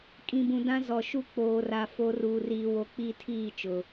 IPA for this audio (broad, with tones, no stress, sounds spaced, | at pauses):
kʼ ĩ˨ b ũ˨ d ã˦ z ɔ˨ ʃ u˦ k͡p oː˨ r a˨ f o˨˦ r uː˨ r iː˨ w o˨ k͡p i˦˨ tʰ iː˦˨ t͡ʃ ʊ˨